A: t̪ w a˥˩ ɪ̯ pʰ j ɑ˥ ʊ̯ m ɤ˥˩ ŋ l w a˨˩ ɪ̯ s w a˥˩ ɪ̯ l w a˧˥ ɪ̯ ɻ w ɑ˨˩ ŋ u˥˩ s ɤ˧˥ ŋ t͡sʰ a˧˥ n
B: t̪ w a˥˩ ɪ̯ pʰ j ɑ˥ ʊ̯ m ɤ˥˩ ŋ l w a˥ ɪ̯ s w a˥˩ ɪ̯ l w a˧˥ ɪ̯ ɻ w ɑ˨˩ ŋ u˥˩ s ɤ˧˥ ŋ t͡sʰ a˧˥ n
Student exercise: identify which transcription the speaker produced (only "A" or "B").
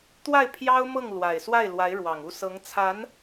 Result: A